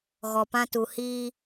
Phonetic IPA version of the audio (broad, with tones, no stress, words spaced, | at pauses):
ɣɔ˨pã˦tu˨ hiː˦